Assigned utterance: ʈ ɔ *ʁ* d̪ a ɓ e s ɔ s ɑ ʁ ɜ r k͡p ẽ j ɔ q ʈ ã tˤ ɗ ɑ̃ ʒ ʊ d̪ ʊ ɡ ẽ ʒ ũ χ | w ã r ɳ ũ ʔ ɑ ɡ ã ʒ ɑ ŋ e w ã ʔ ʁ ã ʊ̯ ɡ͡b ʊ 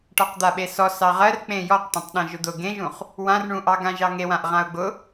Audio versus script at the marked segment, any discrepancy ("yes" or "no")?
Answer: yes